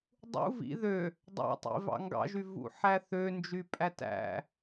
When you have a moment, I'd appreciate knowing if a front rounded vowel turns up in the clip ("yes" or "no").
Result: yes